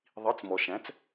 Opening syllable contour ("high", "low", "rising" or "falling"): rising